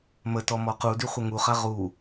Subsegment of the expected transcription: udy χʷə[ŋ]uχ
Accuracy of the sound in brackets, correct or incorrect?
correct